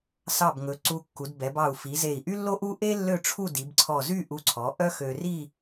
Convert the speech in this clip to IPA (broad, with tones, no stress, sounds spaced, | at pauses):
s ɑ˧˩ b ŋ ɵ˩˧ ǀ u˧ kː u˩˧ d b ɛ˩˧ b ɑ˧˩ u̯ f i˩˧ z e˧˩ i̯ ʔ y˥ lː o˥ ʔ u˥ ʔ e˥ lː ø˥˧ ʈ͡ʂʰ u˥˧ d i˩˧ b ǀʰ ɔ˧˩ z y˥˧ ʔ u˧ ǀʰ ɔ˩˧ ʔ œ˥ x ø˧ r i˥˧